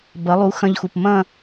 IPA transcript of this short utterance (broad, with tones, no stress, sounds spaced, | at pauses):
b ɐ˩˥ lˠ u˩˥ x ɐ̃˧ ʎ x u˩ p m ɐ̃˥˨